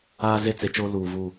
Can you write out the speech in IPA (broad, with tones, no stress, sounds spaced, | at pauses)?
aː˦ z e˦ t͡s e˨ t͡ʃ o˦ l uː˨ v u˦˨